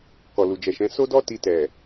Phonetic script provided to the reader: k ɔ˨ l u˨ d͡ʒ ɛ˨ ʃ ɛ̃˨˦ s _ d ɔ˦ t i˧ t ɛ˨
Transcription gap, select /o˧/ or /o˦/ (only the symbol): o˦